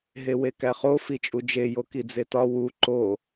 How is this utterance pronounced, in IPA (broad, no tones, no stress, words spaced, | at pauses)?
ɦewekæχo fit͡ʃʼud͡ʒe jokid͡zetɒ wu ǃo